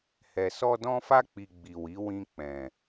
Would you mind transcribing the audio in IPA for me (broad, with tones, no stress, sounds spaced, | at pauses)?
h ɛ˨ s ɔ˧ d ɔ̃˧ f a˧ k͡p i˨ ɡ͡b i˨ w i˨˦ w ĩ˧ k͡p ɛ̃˨